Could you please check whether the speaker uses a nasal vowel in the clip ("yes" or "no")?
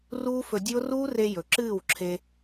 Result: no